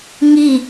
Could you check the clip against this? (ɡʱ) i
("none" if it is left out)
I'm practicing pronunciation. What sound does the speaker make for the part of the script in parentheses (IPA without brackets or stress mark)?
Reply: ŋ